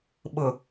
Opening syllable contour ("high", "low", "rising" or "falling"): low